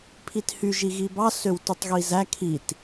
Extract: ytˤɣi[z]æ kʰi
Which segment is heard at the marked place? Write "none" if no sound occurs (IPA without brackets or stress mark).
z